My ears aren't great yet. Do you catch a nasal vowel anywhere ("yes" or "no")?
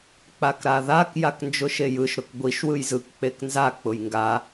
no